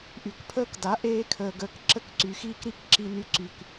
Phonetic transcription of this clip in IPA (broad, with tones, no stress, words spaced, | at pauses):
ʔy˨kpʰəː˦kda˨˦ ʔeː˧kʰəː˨ɡəː˨k ǁə˦kǀy˨˦xiː˦k ɾi˦kǁi˧ny˧ ǀy˨k